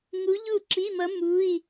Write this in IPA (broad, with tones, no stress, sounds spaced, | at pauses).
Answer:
ŋ u˧˥ ʎ u˥˨ ǁ i˧˥˧ m ʌ˧˥ m u˧˥˧ i̯